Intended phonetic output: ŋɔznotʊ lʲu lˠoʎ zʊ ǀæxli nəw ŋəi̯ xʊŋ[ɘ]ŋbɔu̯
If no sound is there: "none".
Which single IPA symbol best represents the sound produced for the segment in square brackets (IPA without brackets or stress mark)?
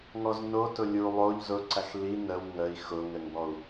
ɘ